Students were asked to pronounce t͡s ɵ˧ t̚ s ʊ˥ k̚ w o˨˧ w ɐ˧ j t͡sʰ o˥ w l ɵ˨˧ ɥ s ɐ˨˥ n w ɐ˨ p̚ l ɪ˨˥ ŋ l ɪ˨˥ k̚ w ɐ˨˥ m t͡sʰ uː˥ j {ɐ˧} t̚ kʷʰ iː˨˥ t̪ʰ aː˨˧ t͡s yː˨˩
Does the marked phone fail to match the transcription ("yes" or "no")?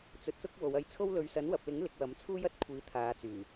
yes